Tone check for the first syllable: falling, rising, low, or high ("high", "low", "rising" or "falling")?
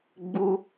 high